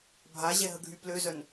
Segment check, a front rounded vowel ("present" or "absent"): present